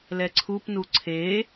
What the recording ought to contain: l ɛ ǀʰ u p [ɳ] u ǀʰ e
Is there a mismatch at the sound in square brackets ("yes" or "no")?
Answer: yes